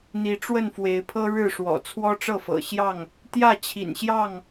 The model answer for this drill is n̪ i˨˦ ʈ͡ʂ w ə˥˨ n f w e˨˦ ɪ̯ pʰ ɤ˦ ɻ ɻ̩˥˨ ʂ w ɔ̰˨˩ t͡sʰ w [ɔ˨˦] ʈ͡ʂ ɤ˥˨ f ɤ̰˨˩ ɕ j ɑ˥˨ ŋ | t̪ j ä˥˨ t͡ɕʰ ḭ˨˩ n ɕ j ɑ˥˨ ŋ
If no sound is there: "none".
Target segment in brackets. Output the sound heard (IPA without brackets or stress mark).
ɔ˦